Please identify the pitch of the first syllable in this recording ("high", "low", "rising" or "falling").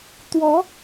rising